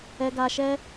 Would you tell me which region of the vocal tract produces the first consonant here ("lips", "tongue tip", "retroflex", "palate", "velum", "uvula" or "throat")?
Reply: velum